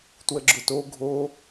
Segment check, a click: present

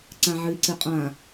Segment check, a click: present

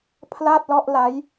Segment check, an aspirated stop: present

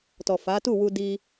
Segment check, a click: absent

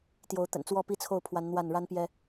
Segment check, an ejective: absent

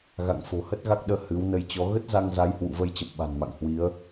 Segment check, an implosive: present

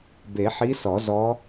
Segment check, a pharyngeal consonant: present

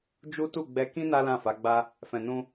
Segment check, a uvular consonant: absent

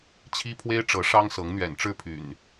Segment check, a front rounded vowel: present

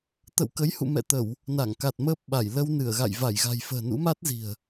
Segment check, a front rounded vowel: absent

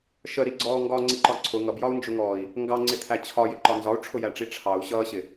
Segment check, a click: present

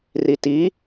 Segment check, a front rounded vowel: absent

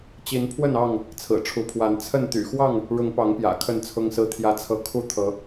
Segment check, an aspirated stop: present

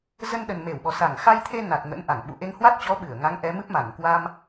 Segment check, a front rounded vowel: absent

